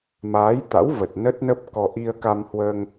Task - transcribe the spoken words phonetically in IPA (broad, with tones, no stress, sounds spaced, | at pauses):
m aː˨˦ j t̪ a̰˧˥ w v ə˨˩ t̚ n ə˦˥ t̚ n ə˦˥ p̚ k ɔ˧ ʔ i˧ ə̯ k a˧ m h w əː˧ ŋ